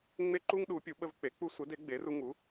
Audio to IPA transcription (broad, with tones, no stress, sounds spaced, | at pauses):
ŋ͡m e˦ ǃ u˦ ŋ ɗ u˨˥ pʲ u˨˥ ɓ ə˦ v k͡p e˨˥ k͡p u˦ sʷ ə˨˥ d e˨˥ ɡ͡b e˨˥ r u˦ ŋ u˨˥